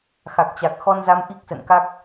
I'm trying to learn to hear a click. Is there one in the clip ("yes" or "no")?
no